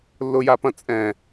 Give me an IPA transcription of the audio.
lː ʊ j a p ɐ̃ t͡sʼ ɛ̃

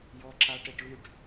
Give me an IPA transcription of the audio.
j ɔ ǁ a ʈ e ʈ ɭ y ʈ

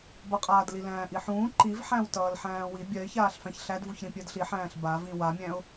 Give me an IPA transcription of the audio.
b ʌ qʼ aː d l i l æ̃ː ʔ i ħ ũː ǃ i v ħ æ̃ w t ʌː l ħ æ̃ː w i bʲ ɜ ɪ̯ ç aː ɬ f æ̃ ç ɬ æ d v u ç ɾ ĩ pʲ ɜ d ɬ i ħ æ̃ː ɬ b a v ĩ w a mʲ æ̃ ʊ̯

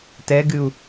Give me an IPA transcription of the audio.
t ɛ ɡ ɨ u̯

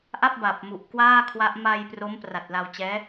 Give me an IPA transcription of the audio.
ʔ a˥˩ p̚ b a˨˩ p̚ m u˨˩ ʔ k w aː˥˩ kʰ w a˦˥ ʔ m a˧ j p r o˦˥ m p r a˨˩ t̚ l a˧ w t͡ɕ ɛː˦˥

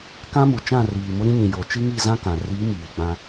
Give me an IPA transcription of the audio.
k ã˦ m u˨ t͡ʃ ã˦˨ r iː˨ m ʊ˦ ɾ ĩ˦ ɲ ĩ˨ j o˨ t͡ʃ i˦ ŋ i˦˨ z ã˦ k ã˨ r i˨˦ m iː˨ ɡ͡b ã˦

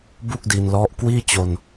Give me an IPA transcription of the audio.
b u˥˩ k̚ d i˧ n l ɔ˦˥ ʔ k w iː˥˩ t͡ɕ o˧ n

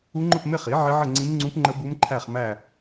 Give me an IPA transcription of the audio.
u˦˥ ŋ͡ǃ ʊ˥˧ p m ɪ˥˧ χ i˩˥ ʕ ɪ˦˥ ʕ ə˥˧ ŋ͡ǀ ĩ˦˥ m ŋ͡ǀ ũ˦˥ p ŋ͡ǃ ə˦˥ b u˦˥ m ǃʰ æ˥˧ χ m æ˥˧

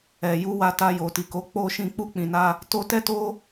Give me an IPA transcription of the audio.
ɛ˨ j u˧ w a˧ t a˧ j o˨ t i˨ k o˨˦ k͡p o˧ ʃ ĩ˧ k͡p u˦ k͡p ĩ˧ n a˦ | t o˦ t ɛ˦ t o˦

